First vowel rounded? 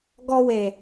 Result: yes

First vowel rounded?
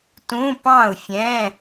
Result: yes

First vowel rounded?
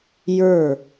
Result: no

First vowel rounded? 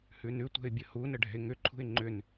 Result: yes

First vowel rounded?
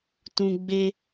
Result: yes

